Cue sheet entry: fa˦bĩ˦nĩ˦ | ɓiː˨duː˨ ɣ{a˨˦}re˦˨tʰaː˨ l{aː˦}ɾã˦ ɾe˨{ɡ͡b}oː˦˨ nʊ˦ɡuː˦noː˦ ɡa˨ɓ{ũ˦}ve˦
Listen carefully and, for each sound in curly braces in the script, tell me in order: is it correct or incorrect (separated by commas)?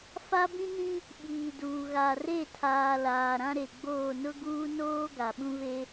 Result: incorrect, incorrect, correct, correct